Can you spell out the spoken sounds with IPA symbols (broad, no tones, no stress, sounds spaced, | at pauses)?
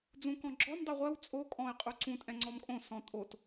d͡z ũ k ɔ̃ ɡ͡ǁ ɔ m dˤ u ʁʷ ɜ w t͡sʼ o kʼ ɔ̃ ɪ̯ qʼ u ǀ ũ tʼ ɛ̃ ŋ͡ǀ ɔ m kʼ õ s ɔ̃ tʼ o t